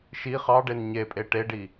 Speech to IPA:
ʃ i χ ɑ ɖ e n ɲ e pʼ e ʈ e ɖ i

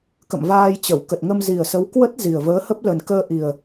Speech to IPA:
k ə̰˧˨ m v aː˧ j t͡ɕ ə˧˩ w k ə˨˩ t̚ ŋ ə˧ m z i˨˩ ə̯ s ə˨˦ w k w ə˦˥ t̚ z i˨˩ ə̯ v əː˨˦ h ə˦˥ p̚ l ə˨˩ n k əː˧ ʔ i˨˩ ə̯

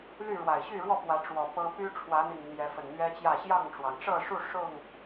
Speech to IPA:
l y˥˨ ɻ w a˨˩ ɪ̯ ɕ y˥˨ ɻ w ɔ˥˨ p w ä˨˦ ʈ͡ʂ w ɔ˨˩ p ɤ˦ p y˦ ʈ͡ʂʰ w ä˨˦ n̪ i˨˩ ŋ n̪ j ɛ˨˦ f ə˨˩ n n̪ ɥ ɛ˦ t͡ɕ j ä˥˨ ɕ j ɑ˥˨ ŋ ʈ͡ʂ w ɑ˩ ŋ ʈ͡ʂ ɤ˥˨ ʂ u˥˨ ʂ ʊ˥˨ ŋ

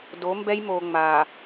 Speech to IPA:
d o˨˦ m b ɛ˦ j m o˨ ŋ͡m a˨

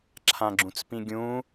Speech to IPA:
ǁʰ ã ɡ͡ǁ ũ t͡s p ĩ ɡʲ ũ

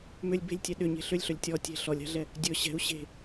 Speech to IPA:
m ʏ lʲ b e̤ lʲ tʲ ɛ ɗ ʏ ɲ e̤ ɬ ʏ lʲ ɬ ɵ lʲ tʲ ɔ tʲ e̤ ɬ ɔ lʲ a̤ ɮ ɛ | dʲ ɵ ɕ ɛ̤ u̯ ɕ e̤

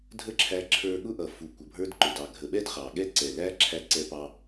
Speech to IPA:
dʱ ə˦ ǁʰ æ˧ ǁʰ ə˞˧ ɠ ʊ˦ ʔ ʌ˨ f u˨ kʷ ʌ˨ bʱ ə˞˧ d ǃ ʊ˨ d ɑ˨ ɡʱ ə˨ ɓ ɛ˦ d χ ɑ˨ ɠ ɛ˦ ǀ ɛ˨ l æ˦ ǁʰ æ˧ ǀ ɛ˧ p ɑ˧

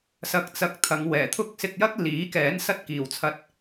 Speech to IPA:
s ɐ˧ k̚ t͡s ɐ˧ k̚ t̪ʰ ɐ˨˧ ŋ w ɛː˨˩ t̪ʰ ʊ˥ k̚ s ɪ˧ k̚ j ɐ˥ k̚ l iː˨˥ k ɛː˨˥ n s ɐ˥ t̚ k iː˨ w t͡sʰ ɐ˧ t̚

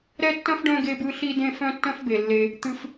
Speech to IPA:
ɾ ɛ˥ tː œ̃˥ f ɖ œ̃˦ ɡ e˦ b ɯ˦ ɬ i˦ d ẽ˦ f œ̃˦ tː œ̃˦ f b e˩ lː e˨ | t̪ ɨ˨ f

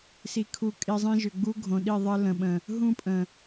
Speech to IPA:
s i˨ kʰ u˨ kʼ i˨ zˤ ĩ˦ ʒ ʏ˨ ɡ͡b u˦ ɡʱ õ˨ ɗ i˦˨ ðˤ ɘ˦ l ə̃˨ ɓ ə̃˨ | ɦ ũ˦ pʼ ə̃˨

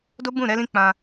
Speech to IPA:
d o˦ b ũ˦˨ ɾ ɛ˧ l ĩ˧ k͡p ã˧

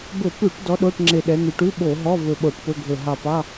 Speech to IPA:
b ɵ˧˩˧ p ʉ˧˩˧ ʈ d ɔ˨˦ ɗ o˧˥˧ ʈ ŋ͡ǁ e˧˩ ɗ ɛ˨˦ n̪ ʉ˨˦ ʈ ʉ˧˥˧ ɓ o˧˩˧ ɦ ɔ˧˥˧ v ɵ˧˩ ɓ o˧˩˧ ʈ p ɵ˧˥˧ ɡʱ ɵ˧˩ ɦ ɑ˧˩ p ɑ˧˥˧

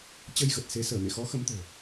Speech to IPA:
t͡ɕ ə˧ j ɣ ə˨˩ t̚ s e˨˦ s əː˧˩ m ḛ˧˨ x ɔ˨˦ x ə˨˦ m t̪ o̤˨˩

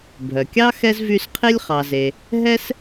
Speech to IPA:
bʱ œ˩ kʲ ɑ˥ x ɛ˥ z v y˦ s qʰ e˥ lʲ χ ɑ˨ z e˨ | ɦ ɛ˥ s

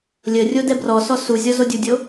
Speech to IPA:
lʲ ə rʲ o d ɛ b r ɔ s ɔ s u zʲ ɔ z o dʲ u dʲ o

